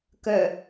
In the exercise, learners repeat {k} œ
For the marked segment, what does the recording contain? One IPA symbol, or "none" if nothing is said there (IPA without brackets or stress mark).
k